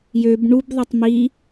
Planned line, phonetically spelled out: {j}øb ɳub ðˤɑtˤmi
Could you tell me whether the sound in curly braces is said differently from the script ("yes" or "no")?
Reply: no